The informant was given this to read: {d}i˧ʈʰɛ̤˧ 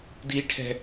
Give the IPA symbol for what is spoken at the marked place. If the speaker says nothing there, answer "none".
d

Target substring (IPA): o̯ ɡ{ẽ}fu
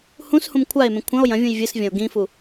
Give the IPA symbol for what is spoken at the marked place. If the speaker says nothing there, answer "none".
ĩ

